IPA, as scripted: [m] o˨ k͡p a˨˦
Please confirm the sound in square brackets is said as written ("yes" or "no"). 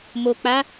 yes